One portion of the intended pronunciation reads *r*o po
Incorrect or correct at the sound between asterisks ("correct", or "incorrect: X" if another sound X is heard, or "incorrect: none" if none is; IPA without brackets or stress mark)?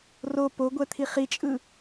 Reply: correct